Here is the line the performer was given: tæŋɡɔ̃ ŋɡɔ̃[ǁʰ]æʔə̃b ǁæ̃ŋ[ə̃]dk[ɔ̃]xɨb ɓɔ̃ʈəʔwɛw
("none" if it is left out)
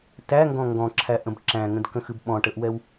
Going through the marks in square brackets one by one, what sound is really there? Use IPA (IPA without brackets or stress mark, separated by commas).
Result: ǁʰ, ə̃, ə̃